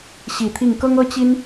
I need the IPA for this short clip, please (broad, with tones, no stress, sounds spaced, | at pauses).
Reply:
ɕ i˨˩ t̪ʰ i˥˩ ŋ k ɤ˥ ŋ ɤ˥ t͡ɕ i˥ n